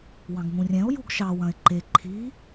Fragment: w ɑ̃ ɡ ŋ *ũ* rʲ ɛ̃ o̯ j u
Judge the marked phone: correct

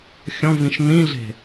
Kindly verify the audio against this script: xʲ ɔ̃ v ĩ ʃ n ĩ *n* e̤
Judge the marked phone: incorrect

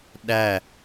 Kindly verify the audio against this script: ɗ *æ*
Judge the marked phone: correct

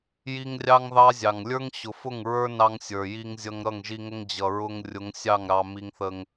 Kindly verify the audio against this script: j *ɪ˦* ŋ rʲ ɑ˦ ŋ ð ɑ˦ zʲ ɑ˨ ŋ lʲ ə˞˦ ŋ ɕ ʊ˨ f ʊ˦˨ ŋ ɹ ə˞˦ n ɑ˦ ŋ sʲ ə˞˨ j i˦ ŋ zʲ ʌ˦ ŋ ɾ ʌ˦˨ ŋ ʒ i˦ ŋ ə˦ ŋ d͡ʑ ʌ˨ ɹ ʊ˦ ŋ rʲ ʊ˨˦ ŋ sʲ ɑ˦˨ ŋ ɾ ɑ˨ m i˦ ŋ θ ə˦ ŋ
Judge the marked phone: incorrect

